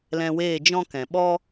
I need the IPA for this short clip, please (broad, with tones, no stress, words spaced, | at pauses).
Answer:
lɛ̃˧weː˦˨d͡ʒɔ̃˦kɛ̃˨ ɓɔ˦